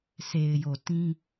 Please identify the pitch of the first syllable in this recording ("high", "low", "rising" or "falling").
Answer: low